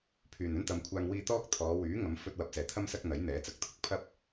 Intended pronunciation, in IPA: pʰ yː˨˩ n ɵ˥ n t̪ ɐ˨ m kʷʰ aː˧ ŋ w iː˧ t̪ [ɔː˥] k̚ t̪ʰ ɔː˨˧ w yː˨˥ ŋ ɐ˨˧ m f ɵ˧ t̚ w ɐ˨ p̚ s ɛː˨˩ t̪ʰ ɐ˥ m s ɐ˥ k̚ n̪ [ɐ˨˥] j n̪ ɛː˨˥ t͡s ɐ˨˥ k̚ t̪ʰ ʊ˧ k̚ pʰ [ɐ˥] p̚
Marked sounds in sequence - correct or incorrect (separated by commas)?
correct, correct, correct